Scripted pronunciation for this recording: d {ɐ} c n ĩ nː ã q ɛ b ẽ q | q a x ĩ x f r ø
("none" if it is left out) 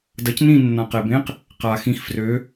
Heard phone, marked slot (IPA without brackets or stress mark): ɐ